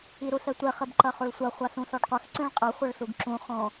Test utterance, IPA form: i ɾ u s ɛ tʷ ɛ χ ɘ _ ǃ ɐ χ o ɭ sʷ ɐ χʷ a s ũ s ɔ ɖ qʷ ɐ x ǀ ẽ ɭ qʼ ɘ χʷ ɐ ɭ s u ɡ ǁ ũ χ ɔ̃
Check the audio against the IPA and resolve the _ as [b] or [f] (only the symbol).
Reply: b